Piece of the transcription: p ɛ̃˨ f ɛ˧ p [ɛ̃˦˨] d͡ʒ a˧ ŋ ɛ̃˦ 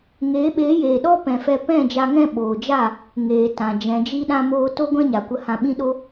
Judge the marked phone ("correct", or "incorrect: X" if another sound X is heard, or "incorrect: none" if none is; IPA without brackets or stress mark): correct